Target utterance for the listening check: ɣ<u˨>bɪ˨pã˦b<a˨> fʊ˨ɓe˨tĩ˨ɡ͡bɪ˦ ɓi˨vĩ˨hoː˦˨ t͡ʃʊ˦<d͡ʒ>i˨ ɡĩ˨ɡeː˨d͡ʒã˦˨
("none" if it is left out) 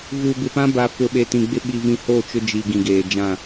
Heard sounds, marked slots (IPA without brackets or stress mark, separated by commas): u˨, a˨, d͡ʒ